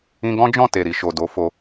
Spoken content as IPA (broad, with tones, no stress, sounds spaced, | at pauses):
ĩ˧ ɡ ɔ̃˦ d͡ʒ ɔ̃˦˨ t e˨ ɾ i˨ ʃ o˨ d o˨˦ f o˧